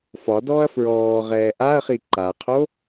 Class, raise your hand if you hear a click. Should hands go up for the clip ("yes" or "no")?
yes